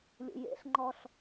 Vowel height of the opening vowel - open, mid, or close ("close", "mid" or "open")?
close